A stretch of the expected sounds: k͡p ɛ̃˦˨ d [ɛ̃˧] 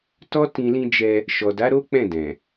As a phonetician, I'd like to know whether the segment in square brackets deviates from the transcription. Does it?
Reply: yes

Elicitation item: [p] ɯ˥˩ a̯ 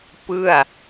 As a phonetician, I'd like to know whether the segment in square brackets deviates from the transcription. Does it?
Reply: no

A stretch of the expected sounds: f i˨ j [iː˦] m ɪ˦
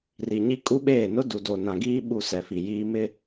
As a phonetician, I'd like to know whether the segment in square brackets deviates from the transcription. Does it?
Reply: no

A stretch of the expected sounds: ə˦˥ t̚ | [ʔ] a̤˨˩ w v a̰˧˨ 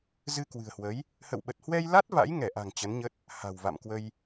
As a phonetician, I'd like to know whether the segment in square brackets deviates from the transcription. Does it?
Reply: yes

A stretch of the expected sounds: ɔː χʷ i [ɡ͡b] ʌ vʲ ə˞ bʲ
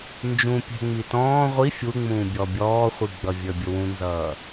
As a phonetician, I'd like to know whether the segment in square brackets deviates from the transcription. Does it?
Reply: no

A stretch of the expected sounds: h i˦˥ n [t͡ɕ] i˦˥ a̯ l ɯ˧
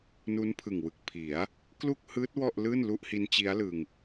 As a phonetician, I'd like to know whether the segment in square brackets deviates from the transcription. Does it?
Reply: no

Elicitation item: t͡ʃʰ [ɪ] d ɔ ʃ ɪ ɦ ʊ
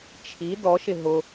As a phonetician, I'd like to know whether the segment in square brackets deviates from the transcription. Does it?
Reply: yes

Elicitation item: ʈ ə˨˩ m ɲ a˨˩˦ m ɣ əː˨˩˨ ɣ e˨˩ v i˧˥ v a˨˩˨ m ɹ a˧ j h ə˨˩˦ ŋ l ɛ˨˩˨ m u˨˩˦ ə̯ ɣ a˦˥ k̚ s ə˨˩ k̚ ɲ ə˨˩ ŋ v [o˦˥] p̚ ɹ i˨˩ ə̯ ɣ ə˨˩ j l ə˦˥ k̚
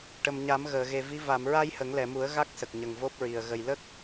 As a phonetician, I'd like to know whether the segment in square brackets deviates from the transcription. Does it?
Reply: no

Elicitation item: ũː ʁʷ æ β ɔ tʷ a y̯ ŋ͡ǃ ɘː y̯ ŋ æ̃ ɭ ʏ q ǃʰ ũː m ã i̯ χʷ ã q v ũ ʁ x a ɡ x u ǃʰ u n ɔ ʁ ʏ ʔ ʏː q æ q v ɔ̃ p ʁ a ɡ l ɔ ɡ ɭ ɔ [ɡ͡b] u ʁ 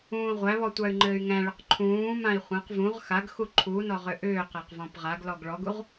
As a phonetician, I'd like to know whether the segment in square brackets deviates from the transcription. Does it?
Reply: yes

